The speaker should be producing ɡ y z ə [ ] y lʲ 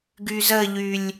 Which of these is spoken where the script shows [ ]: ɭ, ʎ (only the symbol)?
ʎ